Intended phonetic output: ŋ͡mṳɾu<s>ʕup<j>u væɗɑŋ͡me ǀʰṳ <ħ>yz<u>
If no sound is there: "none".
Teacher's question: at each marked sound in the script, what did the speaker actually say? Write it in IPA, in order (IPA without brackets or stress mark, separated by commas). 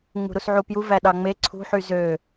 s, j, ħ, ø